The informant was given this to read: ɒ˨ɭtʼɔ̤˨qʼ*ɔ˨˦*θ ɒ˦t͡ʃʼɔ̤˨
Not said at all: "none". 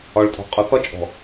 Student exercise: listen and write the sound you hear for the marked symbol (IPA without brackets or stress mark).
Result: ɔ˨˦